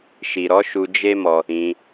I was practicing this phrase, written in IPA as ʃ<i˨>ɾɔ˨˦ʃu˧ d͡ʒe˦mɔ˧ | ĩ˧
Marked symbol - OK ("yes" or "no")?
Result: yes